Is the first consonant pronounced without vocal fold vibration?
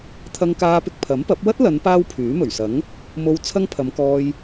yes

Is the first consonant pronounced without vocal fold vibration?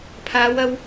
yes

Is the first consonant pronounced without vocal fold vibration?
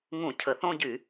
no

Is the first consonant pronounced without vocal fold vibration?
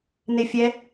no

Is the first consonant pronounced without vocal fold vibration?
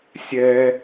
yes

